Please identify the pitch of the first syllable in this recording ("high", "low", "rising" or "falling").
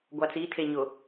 low